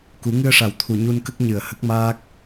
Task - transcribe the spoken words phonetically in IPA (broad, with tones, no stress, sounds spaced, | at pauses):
k u˨˩˦ ŋ ɨ˧ ə̯ ʂ a˨˩ w t̪ʰ u˨˩ ɲ u˧ n k ə˦˥ k̚ ɲ ɨ˨˩ ə̯ h ə˦˥ k̚ m aː˦˥ k̚